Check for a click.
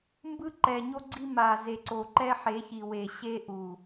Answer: present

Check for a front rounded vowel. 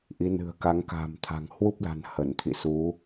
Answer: absent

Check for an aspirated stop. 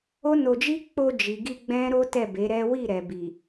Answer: absent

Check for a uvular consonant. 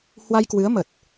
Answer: absent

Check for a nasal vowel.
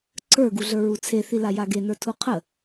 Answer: absent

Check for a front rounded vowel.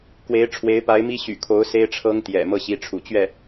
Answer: present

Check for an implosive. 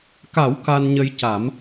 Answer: absent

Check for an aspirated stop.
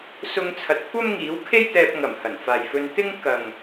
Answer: present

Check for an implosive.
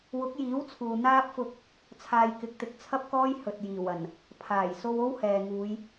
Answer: absent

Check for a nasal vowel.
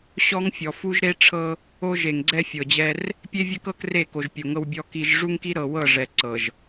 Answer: absent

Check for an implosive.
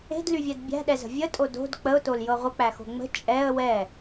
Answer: present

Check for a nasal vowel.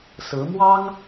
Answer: absent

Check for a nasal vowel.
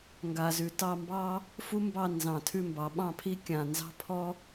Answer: present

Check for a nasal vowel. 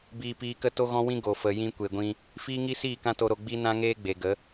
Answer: present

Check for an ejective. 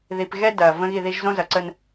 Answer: absent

